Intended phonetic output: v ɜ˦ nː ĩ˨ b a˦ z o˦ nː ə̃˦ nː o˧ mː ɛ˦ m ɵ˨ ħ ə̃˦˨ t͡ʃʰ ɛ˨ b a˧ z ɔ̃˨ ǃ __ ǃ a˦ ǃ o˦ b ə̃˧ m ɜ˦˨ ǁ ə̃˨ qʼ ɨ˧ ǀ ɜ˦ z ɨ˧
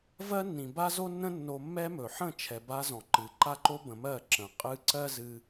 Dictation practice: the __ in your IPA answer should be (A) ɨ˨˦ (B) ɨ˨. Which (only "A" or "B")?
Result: A